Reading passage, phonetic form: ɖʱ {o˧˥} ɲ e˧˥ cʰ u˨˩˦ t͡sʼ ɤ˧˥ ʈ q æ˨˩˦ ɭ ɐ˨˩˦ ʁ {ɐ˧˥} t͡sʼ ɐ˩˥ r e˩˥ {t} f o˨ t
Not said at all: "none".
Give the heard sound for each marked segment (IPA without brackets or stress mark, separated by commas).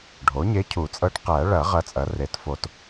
o˩˥, ɐ˧˥, t